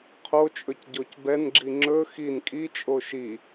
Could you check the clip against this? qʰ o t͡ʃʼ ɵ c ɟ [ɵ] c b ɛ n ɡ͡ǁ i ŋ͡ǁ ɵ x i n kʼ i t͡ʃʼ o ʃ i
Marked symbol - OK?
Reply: no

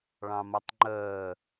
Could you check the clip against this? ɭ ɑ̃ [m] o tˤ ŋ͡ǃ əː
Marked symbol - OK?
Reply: yes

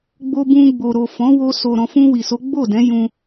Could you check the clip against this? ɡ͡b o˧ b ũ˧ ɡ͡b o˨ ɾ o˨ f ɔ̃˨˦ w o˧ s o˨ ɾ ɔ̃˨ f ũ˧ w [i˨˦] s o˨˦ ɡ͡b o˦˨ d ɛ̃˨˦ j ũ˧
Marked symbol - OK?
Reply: no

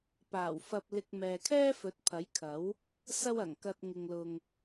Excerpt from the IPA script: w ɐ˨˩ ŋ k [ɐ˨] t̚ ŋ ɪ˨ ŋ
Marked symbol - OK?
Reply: no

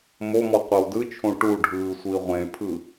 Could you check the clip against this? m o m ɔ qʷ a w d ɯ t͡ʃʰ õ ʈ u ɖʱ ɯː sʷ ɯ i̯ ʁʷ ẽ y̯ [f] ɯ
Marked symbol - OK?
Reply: no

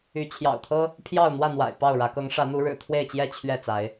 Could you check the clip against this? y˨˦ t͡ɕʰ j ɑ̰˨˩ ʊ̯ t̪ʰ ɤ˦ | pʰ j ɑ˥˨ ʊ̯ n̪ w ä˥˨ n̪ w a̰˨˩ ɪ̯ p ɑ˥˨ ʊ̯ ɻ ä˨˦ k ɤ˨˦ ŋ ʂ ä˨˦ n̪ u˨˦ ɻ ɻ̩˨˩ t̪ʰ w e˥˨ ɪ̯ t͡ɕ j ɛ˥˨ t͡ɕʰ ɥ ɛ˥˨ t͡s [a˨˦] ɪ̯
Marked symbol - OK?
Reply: yes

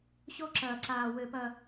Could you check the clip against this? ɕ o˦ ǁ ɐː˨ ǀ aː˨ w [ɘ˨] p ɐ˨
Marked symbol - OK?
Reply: yes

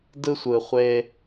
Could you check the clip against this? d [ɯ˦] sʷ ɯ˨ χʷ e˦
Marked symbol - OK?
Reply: yes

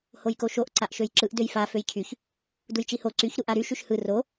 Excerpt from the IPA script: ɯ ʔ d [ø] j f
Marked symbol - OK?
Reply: yes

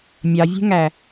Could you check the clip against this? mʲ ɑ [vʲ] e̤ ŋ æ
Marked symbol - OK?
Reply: yes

